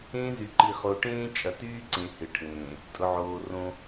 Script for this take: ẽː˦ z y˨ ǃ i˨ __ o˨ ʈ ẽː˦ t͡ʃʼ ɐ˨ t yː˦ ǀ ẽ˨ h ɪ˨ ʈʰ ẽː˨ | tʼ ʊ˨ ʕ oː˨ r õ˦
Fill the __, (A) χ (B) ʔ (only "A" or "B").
A